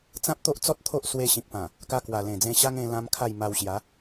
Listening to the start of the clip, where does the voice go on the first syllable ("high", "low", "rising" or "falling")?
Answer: high